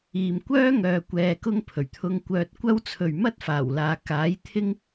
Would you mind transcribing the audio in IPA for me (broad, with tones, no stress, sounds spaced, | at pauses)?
iː˨ m kʷ œː˥ ŋ œː˧ kʷ ɛː˧ k ʊ˥ ŋ pʰ ɵ˨˩ ɥ t̪ʰ ʊ˧ ŋ kʷ œː˧ t̚ kʷ ɐ˥ w t͡sʰ ɵ˨ ɥ m ɐ˥ t̚ f aː˨˩ w l aː˨ k aː˨˥ j t̪ʰ ɪ˥ ŋ